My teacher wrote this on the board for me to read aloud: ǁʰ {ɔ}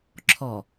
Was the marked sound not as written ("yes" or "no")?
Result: no